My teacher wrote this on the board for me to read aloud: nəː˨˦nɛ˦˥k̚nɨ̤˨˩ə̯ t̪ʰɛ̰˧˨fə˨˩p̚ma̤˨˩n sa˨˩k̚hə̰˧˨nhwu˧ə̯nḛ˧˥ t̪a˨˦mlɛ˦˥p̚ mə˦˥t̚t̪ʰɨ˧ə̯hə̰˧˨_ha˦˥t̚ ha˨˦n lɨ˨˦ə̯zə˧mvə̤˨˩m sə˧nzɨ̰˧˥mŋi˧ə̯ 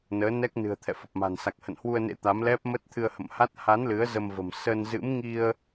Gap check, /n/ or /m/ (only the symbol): m